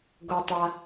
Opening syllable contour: low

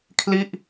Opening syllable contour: falling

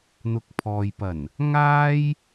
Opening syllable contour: low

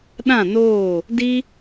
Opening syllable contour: falling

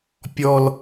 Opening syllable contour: low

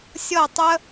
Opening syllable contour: falling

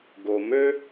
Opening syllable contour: low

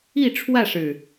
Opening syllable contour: falling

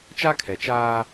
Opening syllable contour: high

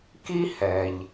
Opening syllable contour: high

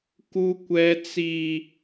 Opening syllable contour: high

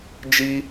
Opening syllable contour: high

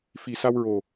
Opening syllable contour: low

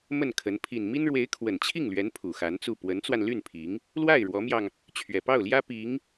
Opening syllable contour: falling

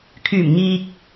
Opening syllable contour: low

